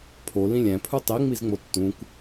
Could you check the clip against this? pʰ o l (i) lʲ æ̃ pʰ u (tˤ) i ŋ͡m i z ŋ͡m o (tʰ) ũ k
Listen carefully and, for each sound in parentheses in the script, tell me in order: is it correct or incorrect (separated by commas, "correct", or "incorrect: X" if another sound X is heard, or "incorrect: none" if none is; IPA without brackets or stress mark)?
incorrect: ĩ, correct, incorrect: tː